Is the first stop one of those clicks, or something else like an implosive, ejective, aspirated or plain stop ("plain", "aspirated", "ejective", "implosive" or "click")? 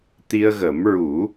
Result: plain